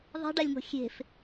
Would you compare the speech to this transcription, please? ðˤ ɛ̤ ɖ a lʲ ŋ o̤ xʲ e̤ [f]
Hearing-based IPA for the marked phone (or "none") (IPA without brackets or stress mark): f